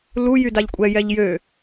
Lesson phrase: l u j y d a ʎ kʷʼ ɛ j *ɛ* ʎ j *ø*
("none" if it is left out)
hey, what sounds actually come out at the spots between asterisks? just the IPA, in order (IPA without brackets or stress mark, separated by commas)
ɛ, ø